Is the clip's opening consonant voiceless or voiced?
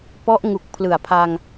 voiceless